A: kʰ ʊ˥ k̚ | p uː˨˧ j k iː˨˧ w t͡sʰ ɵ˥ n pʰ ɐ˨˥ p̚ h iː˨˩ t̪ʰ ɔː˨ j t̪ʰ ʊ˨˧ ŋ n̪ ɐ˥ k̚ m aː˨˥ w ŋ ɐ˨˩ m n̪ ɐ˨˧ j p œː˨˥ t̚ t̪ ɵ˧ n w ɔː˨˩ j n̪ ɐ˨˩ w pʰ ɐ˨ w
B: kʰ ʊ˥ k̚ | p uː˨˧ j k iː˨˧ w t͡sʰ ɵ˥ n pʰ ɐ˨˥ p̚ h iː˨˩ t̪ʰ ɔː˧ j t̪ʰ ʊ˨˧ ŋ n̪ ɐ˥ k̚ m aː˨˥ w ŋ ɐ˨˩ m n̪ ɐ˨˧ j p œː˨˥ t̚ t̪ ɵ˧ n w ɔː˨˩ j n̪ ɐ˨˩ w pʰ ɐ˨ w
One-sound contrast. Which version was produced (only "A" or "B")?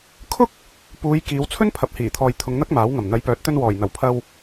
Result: A